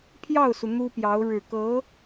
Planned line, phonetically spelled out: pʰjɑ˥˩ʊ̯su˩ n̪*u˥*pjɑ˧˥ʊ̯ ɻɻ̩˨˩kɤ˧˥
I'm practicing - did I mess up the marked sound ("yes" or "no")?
no